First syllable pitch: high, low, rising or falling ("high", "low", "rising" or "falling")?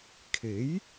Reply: rising